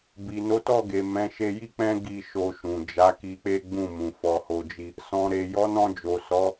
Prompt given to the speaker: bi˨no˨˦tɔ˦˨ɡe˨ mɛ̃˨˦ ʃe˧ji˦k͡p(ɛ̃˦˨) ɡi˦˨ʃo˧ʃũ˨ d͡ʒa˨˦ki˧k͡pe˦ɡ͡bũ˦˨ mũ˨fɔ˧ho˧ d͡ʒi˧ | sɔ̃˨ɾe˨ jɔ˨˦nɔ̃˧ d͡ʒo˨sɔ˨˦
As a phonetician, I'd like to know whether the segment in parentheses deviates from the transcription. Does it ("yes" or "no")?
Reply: yes